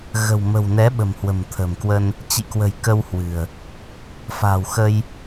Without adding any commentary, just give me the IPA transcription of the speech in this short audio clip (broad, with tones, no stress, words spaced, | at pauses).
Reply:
ɣə̤˨˩wmə̤˨˩wnɛ˨˦ ɓə̤˨˩m hwə̤˨˩mt̪ʰə̤˨˩mkwə˧n | t͡ɕḭ˧˨kwə̤˨˩j kə˧whwɨ̤˨˩ə̯ | fa̤˨˩wxə˧j